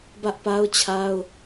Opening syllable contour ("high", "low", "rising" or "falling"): high